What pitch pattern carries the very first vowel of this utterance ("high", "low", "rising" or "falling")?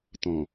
low